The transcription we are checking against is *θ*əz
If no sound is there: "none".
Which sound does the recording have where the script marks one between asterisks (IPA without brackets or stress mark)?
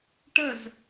ʈ